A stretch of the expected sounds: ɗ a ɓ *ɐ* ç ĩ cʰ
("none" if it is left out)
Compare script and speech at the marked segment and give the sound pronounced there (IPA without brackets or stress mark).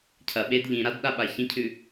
a